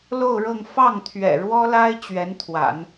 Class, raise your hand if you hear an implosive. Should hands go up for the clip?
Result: no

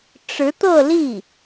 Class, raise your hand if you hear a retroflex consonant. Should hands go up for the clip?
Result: yes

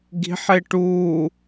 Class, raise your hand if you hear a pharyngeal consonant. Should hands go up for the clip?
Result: yes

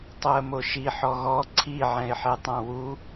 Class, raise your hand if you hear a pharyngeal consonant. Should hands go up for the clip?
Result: yes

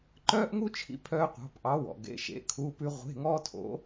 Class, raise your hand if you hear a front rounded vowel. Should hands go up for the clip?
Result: yes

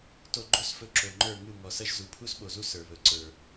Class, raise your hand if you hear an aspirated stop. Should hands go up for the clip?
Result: yes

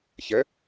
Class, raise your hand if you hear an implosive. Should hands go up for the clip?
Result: no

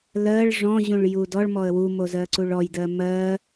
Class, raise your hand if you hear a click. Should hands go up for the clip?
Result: yes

